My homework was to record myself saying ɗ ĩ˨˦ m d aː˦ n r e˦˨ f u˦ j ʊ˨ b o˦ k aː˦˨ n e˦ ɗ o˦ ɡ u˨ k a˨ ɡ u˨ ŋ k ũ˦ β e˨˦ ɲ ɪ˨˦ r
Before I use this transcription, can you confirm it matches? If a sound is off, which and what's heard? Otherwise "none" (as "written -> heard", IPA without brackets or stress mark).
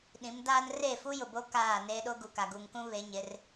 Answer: none